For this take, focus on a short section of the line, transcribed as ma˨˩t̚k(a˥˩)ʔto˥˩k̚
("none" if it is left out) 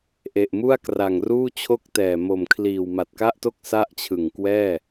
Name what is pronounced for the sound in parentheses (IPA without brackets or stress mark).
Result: a˥˩